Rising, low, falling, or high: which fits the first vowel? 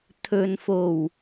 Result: low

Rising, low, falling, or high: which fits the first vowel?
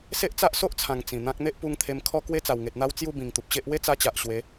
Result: high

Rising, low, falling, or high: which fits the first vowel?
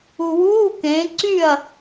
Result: low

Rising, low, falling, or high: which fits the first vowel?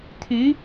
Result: rising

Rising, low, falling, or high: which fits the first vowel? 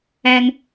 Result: high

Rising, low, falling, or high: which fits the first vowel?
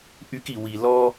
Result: high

